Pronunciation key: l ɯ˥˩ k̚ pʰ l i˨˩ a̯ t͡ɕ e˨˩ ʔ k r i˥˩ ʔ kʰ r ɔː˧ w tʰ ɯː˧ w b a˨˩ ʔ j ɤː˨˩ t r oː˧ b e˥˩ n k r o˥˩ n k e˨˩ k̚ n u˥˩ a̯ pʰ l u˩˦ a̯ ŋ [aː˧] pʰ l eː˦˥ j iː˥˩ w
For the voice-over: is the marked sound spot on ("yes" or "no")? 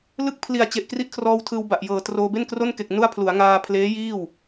yes